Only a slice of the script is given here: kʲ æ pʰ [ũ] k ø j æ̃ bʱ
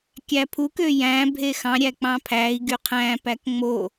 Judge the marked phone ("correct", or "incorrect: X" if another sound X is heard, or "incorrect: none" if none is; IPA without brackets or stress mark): incorrect: u